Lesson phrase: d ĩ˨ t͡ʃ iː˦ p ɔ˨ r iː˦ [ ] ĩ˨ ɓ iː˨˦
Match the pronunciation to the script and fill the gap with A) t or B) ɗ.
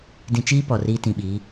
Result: A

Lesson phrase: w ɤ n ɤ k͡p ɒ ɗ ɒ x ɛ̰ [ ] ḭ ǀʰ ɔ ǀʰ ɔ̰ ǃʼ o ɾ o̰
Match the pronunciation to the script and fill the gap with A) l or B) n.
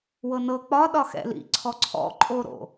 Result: A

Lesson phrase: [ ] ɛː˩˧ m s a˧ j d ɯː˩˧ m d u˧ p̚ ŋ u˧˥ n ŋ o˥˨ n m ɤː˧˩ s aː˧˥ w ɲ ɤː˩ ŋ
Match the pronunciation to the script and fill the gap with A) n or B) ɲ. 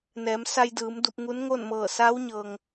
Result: A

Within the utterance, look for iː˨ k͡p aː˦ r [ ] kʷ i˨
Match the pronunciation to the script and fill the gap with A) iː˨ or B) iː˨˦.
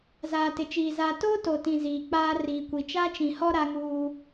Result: A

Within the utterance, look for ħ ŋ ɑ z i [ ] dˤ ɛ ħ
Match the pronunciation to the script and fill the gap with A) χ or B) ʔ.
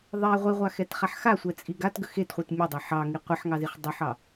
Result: A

